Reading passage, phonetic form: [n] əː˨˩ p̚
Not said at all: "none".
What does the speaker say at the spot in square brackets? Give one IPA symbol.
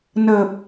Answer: n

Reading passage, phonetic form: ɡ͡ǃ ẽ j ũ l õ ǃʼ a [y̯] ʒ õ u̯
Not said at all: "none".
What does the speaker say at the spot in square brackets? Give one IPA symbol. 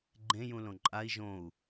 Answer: i̯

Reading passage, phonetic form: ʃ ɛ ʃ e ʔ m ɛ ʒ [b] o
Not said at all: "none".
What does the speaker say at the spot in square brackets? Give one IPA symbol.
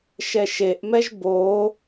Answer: b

